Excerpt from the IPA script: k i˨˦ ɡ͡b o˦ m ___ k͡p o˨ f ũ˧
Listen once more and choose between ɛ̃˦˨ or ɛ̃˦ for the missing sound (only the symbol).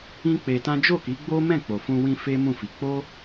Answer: ɛ̃˦˨